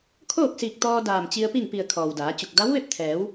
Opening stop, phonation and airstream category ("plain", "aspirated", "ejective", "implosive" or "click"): aspirated